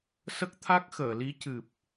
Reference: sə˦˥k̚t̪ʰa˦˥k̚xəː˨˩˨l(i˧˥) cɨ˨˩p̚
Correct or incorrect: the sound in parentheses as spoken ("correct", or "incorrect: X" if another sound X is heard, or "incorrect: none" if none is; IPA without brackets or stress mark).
correct